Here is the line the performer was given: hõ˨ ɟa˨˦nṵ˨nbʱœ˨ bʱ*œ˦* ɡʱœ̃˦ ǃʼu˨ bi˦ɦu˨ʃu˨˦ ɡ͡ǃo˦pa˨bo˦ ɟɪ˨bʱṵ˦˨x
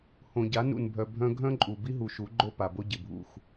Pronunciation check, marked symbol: incorrect: œ̃˦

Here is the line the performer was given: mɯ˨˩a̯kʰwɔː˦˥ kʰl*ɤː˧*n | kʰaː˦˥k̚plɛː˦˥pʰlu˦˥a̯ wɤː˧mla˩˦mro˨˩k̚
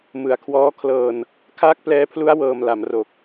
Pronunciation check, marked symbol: correct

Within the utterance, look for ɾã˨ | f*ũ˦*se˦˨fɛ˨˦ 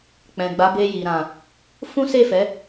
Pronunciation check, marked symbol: correct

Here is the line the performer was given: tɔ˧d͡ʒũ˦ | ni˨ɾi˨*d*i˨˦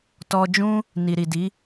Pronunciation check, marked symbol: correct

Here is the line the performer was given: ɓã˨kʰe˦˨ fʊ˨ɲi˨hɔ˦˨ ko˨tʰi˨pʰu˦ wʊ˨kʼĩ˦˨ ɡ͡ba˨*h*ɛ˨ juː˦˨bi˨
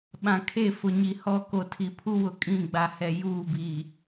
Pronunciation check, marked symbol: correct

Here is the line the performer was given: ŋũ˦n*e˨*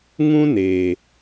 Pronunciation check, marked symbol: correct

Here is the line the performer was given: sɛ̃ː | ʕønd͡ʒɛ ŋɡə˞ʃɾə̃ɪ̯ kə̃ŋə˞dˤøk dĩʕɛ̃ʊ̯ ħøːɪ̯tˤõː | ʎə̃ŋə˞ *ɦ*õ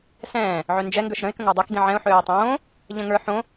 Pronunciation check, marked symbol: incorrect: ħ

